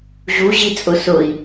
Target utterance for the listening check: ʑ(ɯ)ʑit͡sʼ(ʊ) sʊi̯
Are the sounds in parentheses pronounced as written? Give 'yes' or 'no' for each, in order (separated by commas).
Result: no, yes